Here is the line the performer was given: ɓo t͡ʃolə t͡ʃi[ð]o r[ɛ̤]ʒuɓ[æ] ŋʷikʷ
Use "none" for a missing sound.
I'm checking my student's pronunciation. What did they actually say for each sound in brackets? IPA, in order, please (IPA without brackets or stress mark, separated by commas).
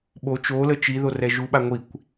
ð, ɛ, a